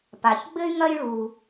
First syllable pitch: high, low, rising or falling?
low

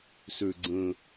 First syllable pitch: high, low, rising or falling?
low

